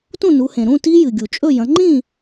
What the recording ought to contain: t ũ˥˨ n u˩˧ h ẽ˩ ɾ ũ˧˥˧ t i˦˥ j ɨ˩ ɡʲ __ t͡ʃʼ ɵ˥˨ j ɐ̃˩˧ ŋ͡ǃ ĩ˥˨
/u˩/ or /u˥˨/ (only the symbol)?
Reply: u˩